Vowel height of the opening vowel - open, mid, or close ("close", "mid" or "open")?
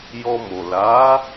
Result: mid